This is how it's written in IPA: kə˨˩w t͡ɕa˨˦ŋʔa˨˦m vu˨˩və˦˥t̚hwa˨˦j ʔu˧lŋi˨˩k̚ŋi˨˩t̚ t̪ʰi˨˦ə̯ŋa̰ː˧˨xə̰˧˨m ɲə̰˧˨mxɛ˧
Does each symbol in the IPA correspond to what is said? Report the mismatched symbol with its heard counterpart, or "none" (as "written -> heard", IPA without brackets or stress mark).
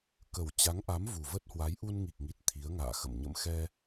l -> n